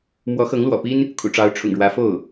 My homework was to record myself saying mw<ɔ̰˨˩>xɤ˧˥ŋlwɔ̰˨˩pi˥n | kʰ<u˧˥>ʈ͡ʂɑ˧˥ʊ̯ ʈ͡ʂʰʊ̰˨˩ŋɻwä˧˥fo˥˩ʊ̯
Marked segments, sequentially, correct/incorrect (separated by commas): incorrect, incorrect